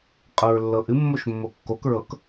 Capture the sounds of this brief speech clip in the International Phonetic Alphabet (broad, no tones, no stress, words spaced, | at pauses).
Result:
qʼɤɹlːɤʔɨ mːoʃmːokːok ɹɤk